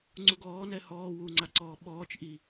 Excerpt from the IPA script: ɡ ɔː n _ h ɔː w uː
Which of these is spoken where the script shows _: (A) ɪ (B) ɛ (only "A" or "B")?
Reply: B